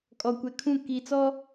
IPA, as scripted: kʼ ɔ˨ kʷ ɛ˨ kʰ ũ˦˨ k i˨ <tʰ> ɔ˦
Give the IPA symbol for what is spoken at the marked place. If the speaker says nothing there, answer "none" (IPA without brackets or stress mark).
t͡s